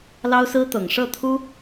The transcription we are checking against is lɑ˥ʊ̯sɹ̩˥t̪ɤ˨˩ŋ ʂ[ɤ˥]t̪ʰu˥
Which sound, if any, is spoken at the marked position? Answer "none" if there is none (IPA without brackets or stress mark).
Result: ɤ˥˩